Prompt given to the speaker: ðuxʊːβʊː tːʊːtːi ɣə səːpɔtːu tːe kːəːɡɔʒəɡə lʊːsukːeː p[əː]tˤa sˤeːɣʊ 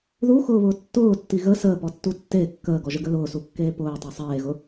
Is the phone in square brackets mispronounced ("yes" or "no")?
yes